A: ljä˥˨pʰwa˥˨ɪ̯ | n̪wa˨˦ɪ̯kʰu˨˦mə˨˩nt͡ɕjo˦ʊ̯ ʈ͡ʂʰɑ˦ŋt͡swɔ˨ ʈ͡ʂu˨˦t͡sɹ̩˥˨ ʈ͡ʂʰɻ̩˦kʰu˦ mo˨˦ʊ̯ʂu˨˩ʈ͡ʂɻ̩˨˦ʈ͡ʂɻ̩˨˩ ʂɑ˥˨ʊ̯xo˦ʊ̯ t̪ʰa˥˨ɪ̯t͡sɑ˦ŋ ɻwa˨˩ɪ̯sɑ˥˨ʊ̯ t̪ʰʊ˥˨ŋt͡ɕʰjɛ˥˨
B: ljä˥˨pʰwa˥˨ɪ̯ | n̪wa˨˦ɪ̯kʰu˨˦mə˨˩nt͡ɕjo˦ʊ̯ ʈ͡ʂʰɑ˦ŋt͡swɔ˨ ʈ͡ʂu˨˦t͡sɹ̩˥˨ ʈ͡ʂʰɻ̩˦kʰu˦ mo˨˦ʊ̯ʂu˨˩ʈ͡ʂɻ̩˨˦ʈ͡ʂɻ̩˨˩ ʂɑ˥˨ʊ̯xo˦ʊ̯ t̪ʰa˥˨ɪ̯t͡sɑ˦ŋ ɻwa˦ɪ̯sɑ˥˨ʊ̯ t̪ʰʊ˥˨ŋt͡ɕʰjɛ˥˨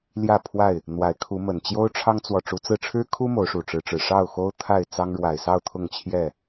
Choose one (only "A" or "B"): A